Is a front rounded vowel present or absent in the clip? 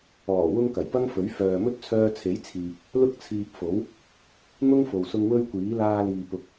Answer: present